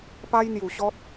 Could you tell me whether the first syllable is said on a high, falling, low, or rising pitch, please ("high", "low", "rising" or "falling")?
high